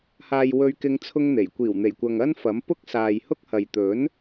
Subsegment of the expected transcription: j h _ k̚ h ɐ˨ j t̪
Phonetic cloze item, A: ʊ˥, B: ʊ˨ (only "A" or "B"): A